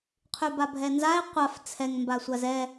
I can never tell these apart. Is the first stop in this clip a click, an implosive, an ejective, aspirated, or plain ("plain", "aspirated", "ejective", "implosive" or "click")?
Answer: aspirated